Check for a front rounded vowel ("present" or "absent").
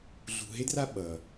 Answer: absent